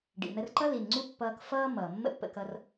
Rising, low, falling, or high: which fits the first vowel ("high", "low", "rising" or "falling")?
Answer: low